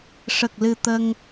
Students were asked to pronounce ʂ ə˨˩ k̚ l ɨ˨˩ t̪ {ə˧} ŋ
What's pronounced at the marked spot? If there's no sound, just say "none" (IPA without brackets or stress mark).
ə˧